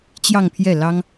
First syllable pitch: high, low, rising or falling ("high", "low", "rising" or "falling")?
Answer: falling